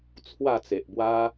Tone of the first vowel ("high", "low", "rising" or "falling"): falling